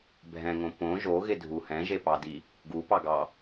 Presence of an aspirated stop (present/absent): absent